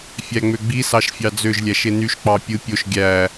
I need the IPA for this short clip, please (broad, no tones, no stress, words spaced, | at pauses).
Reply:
fʲæŋ͡møɡ͡bi sɑʃfʲɑd͡zøʒ lʲæʃenyʃ k͡pɑpʲɯ pʲoʃ ɡʲæ